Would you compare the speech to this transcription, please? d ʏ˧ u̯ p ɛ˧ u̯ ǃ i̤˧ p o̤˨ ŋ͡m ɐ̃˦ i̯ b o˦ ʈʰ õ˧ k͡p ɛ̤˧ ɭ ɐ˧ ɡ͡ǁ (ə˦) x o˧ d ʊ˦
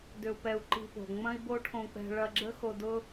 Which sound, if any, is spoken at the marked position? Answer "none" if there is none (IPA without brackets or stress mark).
ə˦